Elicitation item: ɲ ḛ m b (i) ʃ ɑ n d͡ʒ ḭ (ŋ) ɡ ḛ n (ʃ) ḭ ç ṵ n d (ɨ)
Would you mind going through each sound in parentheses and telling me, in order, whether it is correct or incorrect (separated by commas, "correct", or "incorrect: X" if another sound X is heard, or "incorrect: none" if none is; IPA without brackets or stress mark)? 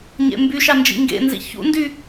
incorrect: y, correct, incorrect: z, incorrect: y